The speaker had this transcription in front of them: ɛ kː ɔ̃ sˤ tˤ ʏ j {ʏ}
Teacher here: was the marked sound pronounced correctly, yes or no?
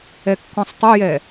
no